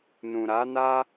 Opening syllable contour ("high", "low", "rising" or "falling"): low